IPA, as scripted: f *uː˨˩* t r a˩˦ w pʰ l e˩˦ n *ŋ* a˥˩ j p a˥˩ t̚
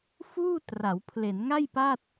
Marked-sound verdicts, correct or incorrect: incorrect: uː˥˩, correct

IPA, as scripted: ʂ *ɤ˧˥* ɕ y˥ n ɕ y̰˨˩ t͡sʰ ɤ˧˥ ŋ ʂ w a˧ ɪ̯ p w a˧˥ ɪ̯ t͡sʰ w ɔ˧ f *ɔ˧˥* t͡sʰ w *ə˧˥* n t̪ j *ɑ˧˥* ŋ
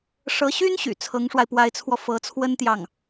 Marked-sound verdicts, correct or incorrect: correct, incorrect: ɤ˧˥, incorrect: ə˥, incorrect: ɑ˥˩

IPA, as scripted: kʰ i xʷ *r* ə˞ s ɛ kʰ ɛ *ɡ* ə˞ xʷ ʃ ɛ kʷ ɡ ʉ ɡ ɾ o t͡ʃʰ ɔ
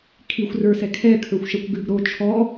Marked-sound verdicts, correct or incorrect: correct, incorrect: kʰ

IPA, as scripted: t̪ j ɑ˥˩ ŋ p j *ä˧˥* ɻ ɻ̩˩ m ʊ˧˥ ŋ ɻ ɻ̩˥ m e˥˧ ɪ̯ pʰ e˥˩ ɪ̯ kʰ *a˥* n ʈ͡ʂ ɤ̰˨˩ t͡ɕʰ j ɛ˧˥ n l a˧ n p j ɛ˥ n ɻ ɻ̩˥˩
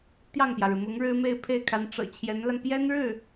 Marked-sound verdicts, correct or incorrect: incorrect: ä˩, incorrect: a˧˥

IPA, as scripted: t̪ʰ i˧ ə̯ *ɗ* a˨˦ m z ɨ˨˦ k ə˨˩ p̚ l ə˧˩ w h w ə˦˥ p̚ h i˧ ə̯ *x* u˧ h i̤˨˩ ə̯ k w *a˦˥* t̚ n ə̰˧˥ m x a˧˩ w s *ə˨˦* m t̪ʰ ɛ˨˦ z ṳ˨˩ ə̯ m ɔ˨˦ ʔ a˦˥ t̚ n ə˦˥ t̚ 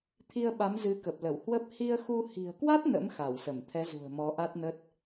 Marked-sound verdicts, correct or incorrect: incorrect: ɓ, correct, correct, incorrect: ə˧˩

